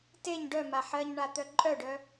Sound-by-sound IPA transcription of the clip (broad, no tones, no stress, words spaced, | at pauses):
teɲ ɖœma ħɜɲɳat̪œ ǃʼœɖœ